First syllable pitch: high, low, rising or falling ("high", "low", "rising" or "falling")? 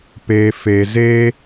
low